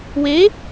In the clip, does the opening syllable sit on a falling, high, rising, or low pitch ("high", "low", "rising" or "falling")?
rising